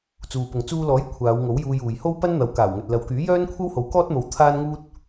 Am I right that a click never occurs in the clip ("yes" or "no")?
yes